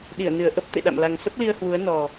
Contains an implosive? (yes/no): yes